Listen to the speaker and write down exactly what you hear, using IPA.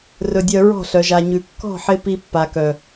r ɵ˨ dʲ œ˨ ɹ ɔ̤˦˨ ɬ œ˨ ʒ a˨ ɲ ʉ˨ kː ɔ̤˦˨ ħ ɪ˧ p i˧ pː a˨ k œ˨

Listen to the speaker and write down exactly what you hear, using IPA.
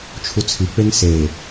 t͡ʃʰ u t͡sʰ i k͡p e ŋ s e

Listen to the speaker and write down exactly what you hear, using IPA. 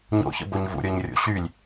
ɲ o̰ ç ə̰ b o ɲ v ṵ ɾʲ o ɲ rʲ o̰ ɕ y lʲ

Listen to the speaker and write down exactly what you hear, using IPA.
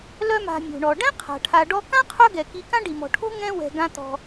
l œ˦ m a̤˨ mʲ o̤˩ ɳ ɔ˩ ɖ ɛ̃˥ qʰ a̤˩ ʈʰ a˨ ɖ ɔ˦ k ã˥ qʰ œ˦ ɡ ɛ˩ k i˨ k ã˦ ɖ i˩ m ɔ̤˩ ʈʰ o̤˦ ŋ ɛ̃˦ w ɛ̤˩ ɡ ã˨ t̪ ɔ̤˩

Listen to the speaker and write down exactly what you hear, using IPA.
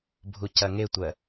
bʱ u c ɐ ŋ e tʷ ɜ

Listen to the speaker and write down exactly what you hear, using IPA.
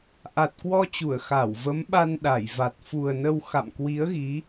ʔ a˨˩ t̚ k w ɔ˧ t͡ɕ u˧˩ ə̯ x a˧˩ w v ə˨˦ m ɓ a˧ n ɗ a˧˩ j v a˨˩ t̚ f u˨˩ ə̯ n ə˧ w x a̰˧˨ m k w i˨˦ ə̯ ɣ i˨˦

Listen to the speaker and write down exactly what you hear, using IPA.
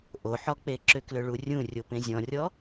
ʔ o ħ ɔ k͡p e ǁ ʏ k l ʏ ɭ u rʲ ũ rʲ o p ẽ zʲ ɔ̃ rʲ ɔ

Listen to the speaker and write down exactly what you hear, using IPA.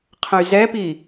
qʰ ə̃ y̯ z ɛ p i

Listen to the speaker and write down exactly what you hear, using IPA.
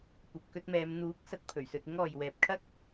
kʷ ɐ˨ p̚ k ɵ˧ t̚ m ɛː˨˧ m n̪ uː˨˥ k̚ s ɐ˨˥ t̚ pʰ ɵ˨˩ ɥ s ɵ˧ t̚ ɪ˥ ŋ ɔː˨ j w ɛː˨ p̚ kʰ ɐ˥ k̚

